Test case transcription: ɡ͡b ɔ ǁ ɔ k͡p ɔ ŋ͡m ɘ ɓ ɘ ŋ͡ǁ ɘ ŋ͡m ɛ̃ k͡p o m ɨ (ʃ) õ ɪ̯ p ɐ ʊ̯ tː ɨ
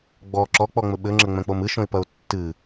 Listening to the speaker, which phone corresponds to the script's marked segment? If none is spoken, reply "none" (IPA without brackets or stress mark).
ʃ